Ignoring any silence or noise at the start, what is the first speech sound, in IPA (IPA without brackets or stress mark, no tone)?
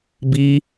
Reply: b